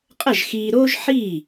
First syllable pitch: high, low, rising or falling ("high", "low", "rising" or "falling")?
falling